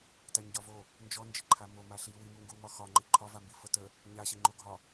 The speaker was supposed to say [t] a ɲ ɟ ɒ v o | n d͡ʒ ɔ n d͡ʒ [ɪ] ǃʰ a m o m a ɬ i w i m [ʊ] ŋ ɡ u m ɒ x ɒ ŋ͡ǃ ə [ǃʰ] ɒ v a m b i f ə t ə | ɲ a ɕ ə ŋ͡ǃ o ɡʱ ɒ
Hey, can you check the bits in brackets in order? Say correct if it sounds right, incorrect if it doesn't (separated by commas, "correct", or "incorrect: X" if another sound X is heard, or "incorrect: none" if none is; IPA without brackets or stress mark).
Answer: correct, correct, incorrect: u, correct